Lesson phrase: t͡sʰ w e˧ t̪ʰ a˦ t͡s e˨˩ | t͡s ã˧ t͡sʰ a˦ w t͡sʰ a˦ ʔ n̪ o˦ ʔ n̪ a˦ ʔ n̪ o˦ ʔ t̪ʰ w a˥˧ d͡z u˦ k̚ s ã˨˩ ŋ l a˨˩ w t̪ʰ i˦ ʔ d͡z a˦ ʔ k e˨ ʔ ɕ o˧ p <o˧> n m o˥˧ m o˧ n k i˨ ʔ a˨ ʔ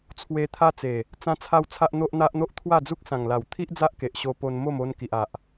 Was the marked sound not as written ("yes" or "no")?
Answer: no